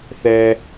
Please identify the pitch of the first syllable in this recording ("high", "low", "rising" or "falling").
low